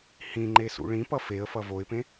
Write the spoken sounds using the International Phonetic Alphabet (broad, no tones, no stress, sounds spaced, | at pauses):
h ĩ ŋ͡ǃ e s ṵ ɭ ĩ p ʌ f e ə̯ f ʌ v o ɪ̯ p ẽ